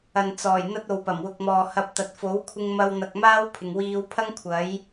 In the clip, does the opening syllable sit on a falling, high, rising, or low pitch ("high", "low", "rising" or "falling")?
low